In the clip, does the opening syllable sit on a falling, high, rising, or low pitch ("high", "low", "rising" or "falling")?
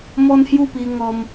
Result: high